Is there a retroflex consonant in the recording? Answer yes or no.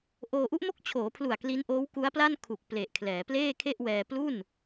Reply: no